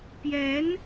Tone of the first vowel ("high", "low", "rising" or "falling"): rising